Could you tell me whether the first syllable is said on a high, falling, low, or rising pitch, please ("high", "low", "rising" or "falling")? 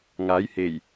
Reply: rising